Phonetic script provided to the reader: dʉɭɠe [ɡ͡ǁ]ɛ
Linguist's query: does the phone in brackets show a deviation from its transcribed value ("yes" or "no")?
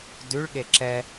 yes